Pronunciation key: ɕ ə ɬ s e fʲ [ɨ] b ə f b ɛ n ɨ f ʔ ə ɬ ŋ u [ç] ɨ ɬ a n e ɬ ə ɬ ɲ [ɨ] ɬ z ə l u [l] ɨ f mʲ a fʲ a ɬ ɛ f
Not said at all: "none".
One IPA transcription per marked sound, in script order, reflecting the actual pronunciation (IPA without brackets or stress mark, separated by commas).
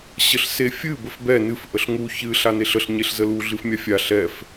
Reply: ɨ, ç, e, ɮ